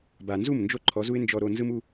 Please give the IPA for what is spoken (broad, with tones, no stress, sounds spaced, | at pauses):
b a˨ n z u˦˨ m n d͡ʒ o˦ ǃʰ ɔ˨˦ z u˦ ɪ̯ n d͡ʒ ɔ˧ ɾ o˧ n z ɯ˦ m u˦